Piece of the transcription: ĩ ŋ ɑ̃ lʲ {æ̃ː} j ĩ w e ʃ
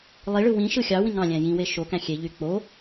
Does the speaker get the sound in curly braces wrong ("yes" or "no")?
yes